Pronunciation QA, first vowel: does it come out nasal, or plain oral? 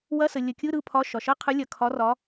oral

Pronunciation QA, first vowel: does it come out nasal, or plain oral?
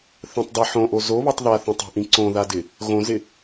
nasal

